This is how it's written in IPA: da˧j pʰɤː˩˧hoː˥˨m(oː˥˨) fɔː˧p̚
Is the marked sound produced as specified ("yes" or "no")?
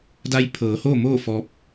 yes